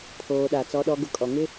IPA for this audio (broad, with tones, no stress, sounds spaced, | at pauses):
pʰ oː˨ ɗ a˨ t͡s ɔ˦ ɗ ɔ˦ ɡ ʊ˦ kʼ ɔ˨ ŋ ɪ˦